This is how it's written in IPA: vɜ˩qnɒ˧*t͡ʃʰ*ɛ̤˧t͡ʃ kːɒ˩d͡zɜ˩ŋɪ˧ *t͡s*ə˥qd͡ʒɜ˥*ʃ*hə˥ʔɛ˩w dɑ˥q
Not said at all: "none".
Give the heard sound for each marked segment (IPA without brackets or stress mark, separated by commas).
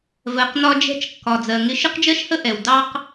d͡ʒ, ʃ, ʃ